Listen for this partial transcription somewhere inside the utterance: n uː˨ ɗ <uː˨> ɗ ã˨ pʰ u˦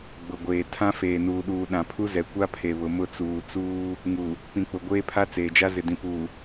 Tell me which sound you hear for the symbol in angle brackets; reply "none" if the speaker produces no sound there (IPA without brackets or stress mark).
uː˨